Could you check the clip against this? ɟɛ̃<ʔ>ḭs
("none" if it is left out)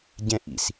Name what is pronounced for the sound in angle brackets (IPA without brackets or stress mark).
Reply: ʔ